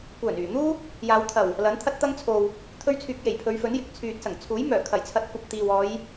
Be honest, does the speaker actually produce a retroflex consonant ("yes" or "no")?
no